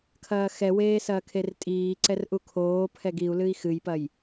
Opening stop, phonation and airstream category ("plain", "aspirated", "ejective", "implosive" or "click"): aspirated